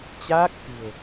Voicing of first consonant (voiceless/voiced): voiceless